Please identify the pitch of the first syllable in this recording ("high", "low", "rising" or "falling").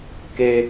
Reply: high